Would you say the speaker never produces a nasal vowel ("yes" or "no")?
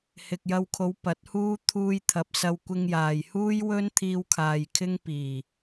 yes